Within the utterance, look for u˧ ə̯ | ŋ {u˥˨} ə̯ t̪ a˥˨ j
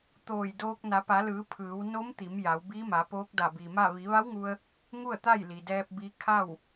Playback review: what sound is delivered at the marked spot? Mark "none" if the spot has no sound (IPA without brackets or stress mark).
u˥˨